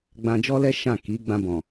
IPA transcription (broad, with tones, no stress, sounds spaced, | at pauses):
ɡ͡b ã˧ d͡ʒ ɔ˦ l ɛ˦ ʃ ã˦˨ k i˨˦ ɡ͡b ã˧ b ɔ̃˨